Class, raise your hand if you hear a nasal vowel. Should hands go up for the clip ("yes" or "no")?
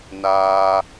no